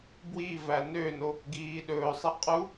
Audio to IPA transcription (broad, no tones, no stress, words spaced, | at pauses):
bwivæ nøno | ɡiːɗɵːsˤi qʼu